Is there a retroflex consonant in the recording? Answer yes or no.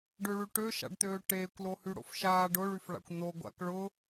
yes